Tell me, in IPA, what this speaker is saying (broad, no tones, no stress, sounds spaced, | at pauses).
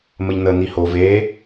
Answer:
m ə ʎ n ə n i h o v e